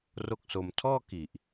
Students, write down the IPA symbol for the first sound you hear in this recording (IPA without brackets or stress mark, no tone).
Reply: r